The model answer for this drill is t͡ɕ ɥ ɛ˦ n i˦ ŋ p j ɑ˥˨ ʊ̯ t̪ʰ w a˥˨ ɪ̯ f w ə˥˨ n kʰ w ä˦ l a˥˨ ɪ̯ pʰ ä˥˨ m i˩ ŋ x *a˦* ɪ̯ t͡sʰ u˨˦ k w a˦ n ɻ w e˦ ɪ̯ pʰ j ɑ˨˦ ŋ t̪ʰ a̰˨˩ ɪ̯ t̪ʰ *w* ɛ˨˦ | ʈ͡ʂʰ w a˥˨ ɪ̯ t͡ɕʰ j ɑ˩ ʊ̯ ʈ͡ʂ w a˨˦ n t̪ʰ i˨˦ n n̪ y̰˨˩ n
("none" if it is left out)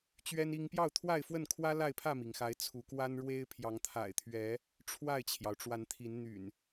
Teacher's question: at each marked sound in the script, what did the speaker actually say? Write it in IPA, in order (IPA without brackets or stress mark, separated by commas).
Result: a˨˦, ɥ